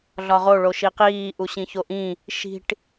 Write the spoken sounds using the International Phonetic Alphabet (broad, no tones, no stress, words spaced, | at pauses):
ɮɒʁo ɭoʃiqiː ʔuɕĩçoʔĩ | ʃi̤ʈ